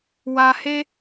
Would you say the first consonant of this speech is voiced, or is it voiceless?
voiced